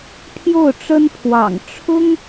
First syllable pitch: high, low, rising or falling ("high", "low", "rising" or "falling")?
falling